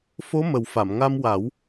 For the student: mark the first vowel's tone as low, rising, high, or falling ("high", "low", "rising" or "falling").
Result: rising